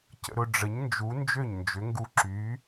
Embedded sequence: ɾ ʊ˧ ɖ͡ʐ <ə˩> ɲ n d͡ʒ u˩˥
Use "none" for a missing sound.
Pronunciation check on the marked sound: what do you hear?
ə˩˥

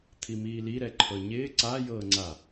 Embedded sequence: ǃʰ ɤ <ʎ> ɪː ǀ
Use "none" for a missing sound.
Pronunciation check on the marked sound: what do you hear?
ɲ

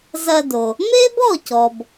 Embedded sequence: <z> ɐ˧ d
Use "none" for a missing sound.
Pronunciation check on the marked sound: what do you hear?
z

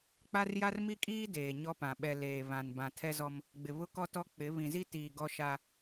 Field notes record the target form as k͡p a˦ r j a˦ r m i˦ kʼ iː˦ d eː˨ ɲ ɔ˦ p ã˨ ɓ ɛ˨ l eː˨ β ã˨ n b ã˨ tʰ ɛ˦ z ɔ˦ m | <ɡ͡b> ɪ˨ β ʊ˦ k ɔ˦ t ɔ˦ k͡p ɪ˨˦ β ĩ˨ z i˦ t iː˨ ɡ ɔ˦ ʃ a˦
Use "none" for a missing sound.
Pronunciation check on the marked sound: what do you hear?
ɡ͡b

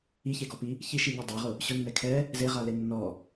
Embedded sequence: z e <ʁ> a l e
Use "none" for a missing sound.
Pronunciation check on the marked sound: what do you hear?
ʁ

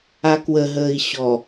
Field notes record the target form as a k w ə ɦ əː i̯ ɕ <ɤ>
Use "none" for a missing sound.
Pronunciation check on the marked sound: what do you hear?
ɔ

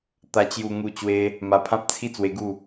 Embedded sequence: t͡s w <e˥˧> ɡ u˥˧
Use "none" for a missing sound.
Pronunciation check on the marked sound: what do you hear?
e˧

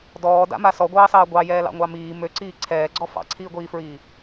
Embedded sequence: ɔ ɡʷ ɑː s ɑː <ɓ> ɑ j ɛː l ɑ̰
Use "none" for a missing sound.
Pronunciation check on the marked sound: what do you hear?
ɡʷ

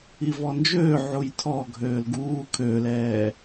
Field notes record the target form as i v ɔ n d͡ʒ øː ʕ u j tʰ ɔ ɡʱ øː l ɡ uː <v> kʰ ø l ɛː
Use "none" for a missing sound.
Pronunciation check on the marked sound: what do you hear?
none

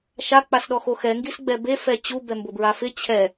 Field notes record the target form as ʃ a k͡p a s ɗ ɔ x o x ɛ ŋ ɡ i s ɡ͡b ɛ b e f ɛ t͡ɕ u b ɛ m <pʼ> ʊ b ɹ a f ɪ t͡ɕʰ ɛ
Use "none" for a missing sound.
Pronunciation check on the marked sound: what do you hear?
b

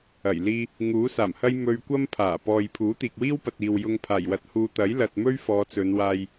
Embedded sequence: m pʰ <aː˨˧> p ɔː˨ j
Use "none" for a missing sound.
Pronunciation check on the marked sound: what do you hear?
aː˨˩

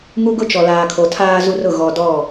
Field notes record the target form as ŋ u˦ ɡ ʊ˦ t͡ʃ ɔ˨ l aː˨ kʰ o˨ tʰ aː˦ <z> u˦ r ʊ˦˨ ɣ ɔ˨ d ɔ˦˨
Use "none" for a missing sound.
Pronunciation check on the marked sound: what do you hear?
z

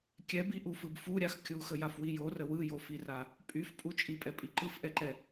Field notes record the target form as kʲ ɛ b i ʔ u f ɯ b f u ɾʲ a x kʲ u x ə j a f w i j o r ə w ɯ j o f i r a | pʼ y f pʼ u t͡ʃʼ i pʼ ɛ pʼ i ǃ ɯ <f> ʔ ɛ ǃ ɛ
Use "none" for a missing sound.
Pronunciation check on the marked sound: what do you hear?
f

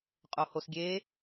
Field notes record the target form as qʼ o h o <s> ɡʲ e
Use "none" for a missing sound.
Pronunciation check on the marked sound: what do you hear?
s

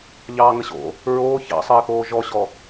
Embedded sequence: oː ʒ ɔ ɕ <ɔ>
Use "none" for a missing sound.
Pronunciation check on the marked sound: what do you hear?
ɔ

